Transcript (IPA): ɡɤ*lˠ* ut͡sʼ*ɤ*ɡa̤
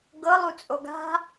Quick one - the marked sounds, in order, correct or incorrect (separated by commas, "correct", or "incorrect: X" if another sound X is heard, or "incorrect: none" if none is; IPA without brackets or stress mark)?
correct, incorrect: o